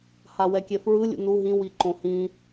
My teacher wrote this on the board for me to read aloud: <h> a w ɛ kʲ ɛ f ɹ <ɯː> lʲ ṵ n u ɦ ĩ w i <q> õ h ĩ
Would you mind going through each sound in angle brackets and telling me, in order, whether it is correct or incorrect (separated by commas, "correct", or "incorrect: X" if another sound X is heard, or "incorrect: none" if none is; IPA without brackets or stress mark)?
correct, incorrect: ɯ, incorrect: ǃ